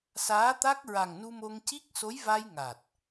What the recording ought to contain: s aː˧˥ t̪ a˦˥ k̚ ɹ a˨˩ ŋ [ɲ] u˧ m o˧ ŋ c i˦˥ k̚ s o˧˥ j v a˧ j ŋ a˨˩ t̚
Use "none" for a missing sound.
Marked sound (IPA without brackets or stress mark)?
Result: n